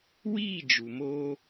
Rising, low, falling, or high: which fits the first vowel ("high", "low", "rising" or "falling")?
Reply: falling